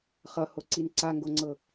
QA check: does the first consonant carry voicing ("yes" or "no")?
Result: no